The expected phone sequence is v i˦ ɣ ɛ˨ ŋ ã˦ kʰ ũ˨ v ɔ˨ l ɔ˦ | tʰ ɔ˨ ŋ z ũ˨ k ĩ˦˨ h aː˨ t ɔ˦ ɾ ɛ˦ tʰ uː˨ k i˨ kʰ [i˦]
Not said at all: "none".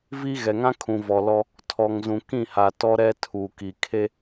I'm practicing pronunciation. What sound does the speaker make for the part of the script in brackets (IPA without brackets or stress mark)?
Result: e˦